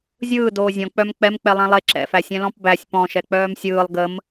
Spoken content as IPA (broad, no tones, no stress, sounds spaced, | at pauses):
zʲ ɯː d oː zʲ ɔ̃ k͡p œ m k͡p ɛ m k͡p ɛ lˠ ɛ̃ lˠ e ǁ ɛ̰ f æ sʲ ɛ̃ l ɔ̃ p b æ sʲ p ɔ̃ ʃ ɛ k͡p œː m sʲ ɯː lˠ ɡ ə m